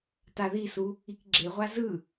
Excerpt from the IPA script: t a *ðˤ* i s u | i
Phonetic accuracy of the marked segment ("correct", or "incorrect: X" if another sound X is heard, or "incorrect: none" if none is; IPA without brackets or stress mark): incorrect: ð